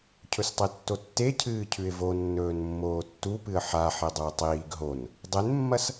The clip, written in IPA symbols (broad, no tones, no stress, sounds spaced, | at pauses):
cʰ ɵ s tˤ e tː o tː e cʰ ɨː cʰ ʉ ɪ̯ v o nː ɵː n mː oː tː u p ɨ ə̯ ħ a ħ e dˤ u ə̯ tˤ iː ɡ ɦ o n | dˤ e n mː ɐ s